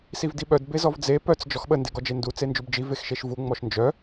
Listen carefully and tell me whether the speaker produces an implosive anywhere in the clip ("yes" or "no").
yes